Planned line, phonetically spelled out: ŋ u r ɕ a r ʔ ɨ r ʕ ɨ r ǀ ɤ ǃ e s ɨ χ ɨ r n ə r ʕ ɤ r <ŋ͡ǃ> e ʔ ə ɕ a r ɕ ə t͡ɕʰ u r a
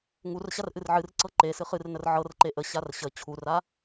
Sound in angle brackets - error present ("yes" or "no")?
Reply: yes